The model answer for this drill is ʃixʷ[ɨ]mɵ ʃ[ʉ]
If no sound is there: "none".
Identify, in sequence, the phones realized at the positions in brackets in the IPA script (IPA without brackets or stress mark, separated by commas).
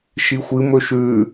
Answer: ɨ, ʉ